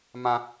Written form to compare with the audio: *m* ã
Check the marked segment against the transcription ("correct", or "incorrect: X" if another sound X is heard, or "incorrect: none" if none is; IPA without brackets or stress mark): correct